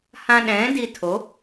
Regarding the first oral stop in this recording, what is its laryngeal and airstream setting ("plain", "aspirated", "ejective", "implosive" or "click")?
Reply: implosive